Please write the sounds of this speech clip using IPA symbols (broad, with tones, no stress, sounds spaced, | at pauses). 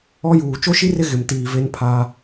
ɔ˦ j uː˨ t͡ʃ o˦ ʃ i˦ r ɪ˦ ɣ ɪ˨ m t iː˨ v e˦ n pʰ a˦